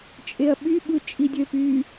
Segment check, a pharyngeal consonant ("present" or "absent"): absent